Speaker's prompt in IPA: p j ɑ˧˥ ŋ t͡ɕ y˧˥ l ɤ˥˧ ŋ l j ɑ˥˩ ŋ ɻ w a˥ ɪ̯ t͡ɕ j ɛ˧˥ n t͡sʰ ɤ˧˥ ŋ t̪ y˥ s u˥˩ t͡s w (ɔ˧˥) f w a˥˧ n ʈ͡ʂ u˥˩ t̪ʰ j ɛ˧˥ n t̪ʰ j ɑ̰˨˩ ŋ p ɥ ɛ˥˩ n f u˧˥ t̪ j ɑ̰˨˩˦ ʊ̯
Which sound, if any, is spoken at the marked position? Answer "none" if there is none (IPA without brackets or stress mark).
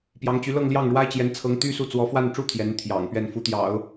ɔ˧˥